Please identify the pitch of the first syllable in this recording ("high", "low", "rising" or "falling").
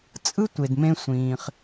high